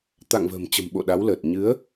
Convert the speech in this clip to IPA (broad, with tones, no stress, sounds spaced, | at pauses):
t̪ a̰˧˨ ŋ v ə̤ː˨˩ m t͡ɕ ə̤˨˩ m ɓ o̰˧˨ ɗ a˨˦ w l əː˨˩ t̚ ɲ ɨ˨˦ ə̯